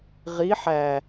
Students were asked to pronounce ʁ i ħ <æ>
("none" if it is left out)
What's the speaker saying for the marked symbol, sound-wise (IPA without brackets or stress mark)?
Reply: æ